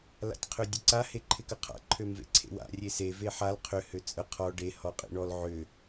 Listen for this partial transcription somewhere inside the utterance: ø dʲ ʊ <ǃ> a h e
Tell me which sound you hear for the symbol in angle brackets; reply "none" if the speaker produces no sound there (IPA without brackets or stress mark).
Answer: ǀ